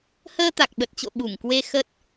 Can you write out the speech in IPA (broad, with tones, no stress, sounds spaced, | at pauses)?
h əː˧ t̪ a˨˩ k̚ ɓ ə˨˩ t̚ t͡ɕ o̰˧˨ ɓ u˧˩ ŋ k w e˧ x ə˦˥ t̚